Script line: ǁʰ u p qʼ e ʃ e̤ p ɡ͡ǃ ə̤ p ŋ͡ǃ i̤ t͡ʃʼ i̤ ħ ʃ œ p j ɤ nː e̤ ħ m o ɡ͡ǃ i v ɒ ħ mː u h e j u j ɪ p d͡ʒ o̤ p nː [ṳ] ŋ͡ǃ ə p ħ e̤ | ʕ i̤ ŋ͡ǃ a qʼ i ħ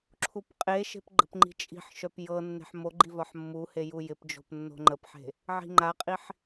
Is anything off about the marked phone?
yes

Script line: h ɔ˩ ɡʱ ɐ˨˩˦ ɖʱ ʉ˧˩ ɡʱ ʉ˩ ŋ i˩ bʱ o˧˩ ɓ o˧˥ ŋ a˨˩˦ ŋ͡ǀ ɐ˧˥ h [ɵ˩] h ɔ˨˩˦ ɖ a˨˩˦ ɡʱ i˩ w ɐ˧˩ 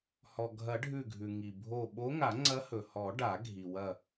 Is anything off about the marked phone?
no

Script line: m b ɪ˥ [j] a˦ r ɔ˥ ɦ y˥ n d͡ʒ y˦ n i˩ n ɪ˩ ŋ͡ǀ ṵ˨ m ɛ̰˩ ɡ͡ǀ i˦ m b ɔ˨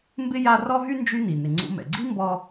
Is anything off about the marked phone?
no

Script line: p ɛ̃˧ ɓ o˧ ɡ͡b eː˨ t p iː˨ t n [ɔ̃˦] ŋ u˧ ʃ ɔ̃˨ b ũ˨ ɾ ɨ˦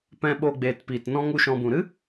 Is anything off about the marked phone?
no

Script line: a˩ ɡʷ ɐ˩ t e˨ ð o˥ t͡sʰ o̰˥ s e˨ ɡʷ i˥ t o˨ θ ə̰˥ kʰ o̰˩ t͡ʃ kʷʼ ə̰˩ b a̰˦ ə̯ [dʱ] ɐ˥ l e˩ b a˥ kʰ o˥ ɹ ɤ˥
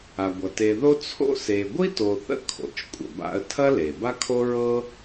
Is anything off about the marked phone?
yes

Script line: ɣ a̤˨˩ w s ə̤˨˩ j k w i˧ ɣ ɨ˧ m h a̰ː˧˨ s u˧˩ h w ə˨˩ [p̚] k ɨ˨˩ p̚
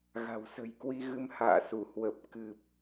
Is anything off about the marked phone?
no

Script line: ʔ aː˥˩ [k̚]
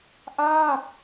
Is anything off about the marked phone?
no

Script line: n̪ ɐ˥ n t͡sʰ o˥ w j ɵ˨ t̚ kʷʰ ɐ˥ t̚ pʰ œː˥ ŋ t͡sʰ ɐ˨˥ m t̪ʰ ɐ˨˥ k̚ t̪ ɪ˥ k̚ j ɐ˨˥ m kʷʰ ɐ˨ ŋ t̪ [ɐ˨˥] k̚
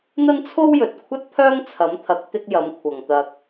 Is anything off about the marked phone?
yes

